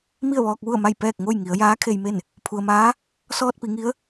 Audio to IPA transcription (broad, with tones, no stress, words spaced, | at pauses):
mi˥˨ə̯ʋɔː˧k̚ʋu˥˨ə̯ma˥˨j pɛː˥˨k̚ŋo˥˨j ŋi˩˧ə̯jaː˧˥kʰe˧jme˥˨n | pʰu˩ə̯maː˧˥ | sɔː˧t̚pi˩˧ŋi˧˥ə̯